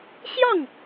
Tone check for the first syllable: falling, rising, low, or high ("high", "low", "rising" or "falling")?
falling